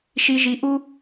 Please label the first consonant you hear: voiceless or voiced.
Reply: voiceless